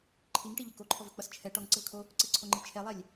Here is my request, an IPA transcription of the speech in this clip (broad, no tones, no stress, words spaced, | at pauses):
ǃʰiŋʈiʎɘ koǃʰɔvɘk͡pʌs t͡ʃʰɛ ʈɔŋǀɘvkʰo | ǀɘǀʰoŋ͡ǃi t͡ʃʰɛlˠɛlʲ